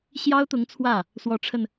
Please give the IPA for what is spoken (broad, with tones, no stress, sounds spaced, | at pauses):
ɕ j ɑ˥ ʊ̯ t̪ ʊ˧˥ ŋ t͡sʰ w ä˥˩ | s w ɔ˧˥ ʈ͡ʂʰ ə˧ n